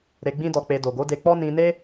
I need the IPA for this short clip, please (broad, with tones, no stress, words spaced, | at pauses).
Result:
ɾe˧ɡ͡bĩ˦dɔ˧k͡pe˧ do˨ɡo˨˦de˧k͡pɔ˦ nĩ˧ne˦